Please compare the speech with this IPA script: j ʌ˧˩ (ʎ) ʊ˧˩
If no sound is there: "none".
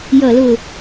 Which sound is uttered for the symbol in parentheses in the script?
l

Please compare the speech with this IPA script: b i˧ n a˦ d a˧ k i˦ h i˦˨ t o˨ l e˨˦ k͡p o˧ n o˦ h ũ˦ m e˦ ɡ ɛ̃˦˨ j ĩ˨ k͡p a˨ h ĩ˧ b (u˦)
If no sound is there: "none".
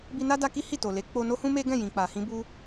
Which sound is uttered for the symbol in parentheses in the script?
u˦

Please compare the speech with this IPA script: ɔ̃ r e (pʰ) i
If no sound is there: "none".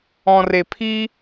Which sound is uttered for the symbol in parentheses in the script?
pʰ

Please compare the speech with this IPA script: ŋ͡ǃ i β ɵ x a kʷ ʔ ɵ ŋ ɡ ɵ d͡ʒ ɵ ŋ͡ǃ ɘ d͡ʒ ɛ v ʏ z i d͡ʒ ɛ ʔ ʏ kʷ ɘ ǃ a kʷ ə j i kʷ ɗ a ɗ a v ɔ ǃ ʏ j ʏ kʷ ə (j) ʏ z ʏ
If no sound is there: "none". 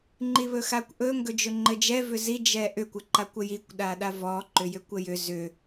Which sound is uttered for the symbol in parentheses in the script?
j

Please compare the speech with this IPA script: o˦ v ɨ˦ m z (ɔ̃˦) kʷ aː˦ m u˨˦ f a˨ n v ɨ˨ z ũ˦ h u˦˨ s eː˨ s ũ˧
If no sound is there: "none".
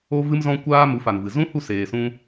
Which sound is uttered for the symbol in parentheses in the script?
ɔ̃˦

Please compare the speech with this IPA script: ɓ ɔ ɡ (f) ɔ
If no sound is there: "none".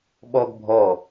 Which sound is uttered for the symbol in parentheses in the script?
bʱ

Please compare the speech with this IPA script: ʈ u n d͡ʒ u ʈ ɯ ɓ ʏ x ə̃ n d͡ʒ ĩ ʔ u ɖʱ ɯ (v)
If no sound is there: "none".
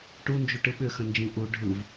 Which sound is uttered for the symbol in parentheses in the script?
v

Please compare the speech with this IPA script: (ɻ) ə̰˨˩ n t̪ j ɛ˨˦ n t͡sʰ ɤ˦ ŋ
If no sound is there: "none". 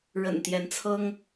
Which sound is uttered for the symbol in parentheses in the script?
ɻ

